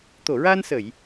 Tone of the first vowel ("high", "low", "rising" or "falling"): low